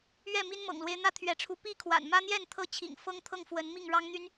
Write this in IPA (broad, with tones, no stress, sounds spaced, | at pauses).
ɥ ɛ˥˨ m i˦ n m ɤ̰˨˩ ŋ l w e˦ ɪ̯ n̪ ä˥˨ t̪ʰ ɥ ɛ˨˦ ʈ͡ʂʰ u˨˦ p i˥˨ kʰ w a̰˨˩ n m ä˦ n̪ j ɛ˥˨ n t̪ʰ ɤ˥˨ t͡ɕʰ ḭ˨˩ ŋ f ɤ˦ ŋ t̪ʰ ɤ˥˨ ŋ f w ə˨˦ n m i˥˨ ŋ ɻ ɑ˦ ŋ n̪ y˨˦ n